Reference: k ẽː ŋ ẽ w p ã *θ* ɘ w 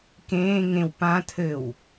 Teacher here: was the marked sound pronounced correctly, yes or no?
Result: no